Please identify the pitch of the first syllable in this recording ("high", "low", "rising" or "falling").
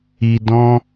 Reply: low